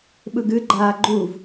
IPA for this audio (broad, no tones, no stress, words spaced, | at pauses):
ɓɯɡɨ ɡ͡ǃaːɡ͡ǃuv